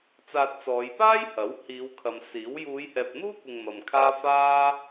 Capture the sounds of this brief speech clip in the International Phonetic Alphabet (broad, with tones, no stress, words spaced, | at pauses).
t͡saː˧t̚t͡sɔː˨˧j paː˥j hɐ˨˥w hiː˨˧wkʰɐ˨msiː˨˥w juː˨˧jhɛː˨p̚n̪uː˥kʷɪ˨ŋ mɐ˨mkʰaː˥ faː˥